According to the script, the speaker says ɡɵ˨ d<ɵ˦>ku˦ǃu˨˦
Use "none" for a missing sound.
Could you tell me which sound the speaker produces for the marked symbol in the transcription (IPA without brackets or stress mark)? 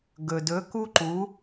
ɵ˨˦